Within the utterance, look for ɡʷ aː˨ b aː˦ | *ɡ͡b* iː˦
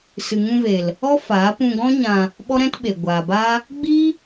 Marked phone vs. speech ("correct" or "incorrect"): correct